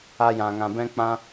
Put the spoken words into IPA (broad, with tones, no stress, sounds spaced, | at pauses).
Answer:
a˧ j ã˨ ŋ ã˨ b ɛ̃˦ k͡p ã˦